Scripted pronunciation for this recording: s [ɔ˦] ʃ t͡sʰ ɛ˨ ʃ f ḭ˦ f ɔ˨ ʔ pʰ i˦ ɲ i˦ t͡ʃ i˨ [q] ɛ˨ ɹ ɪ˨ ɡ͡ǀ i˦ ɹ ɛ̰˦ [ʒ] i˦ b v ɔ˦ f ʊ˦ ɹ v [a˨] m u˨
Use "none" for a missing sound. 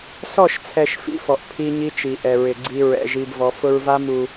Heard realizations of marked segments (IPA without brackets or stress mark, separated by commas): ɔ˦˨, ʔ, ʒ, a˦